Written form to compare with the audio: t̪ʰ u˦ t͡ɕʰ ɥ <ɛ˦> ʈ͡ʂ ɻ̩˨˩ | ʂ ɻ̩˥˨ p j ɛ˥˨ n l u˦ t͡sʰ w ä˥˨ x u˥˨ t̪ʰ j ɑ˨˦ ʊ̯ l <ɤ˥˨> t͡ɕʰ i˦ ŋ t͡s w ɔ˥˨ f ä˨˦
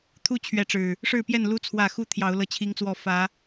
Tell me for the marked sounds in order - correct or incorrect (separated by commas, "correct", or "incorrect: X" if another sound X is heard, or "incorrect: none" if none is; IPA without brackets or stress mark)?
incorrect: ɛ˨˦, incorrect: ɤ˦